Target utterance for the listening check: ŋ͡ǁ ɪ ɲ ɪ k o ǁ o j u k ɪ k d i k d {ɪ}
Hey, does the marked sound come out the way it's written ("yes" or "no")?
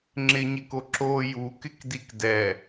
no